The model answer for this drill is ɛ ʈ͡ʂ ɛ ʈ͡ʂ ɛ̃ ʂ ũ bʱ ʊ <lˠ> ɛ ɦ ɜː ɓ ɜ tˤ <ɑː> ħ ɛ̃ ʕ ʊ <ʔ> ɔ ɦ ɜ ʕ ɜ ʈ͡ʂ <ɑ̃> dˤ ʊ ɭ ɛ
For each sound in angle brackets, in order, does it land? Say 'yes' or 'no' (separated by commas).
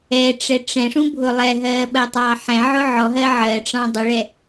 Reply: yes, yes, no, yes